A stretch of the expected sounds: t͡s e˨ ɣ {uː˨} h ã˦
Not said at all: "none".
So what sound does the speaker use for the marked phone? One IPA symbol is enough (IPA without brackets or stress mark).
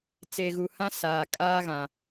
u˨